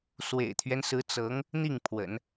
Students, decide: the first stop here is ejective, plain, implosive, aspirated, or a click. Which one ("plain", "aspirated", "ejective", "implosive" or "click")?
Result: aspirated